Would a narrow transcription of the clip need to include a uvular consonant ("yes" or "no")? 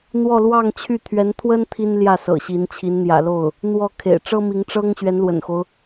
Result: no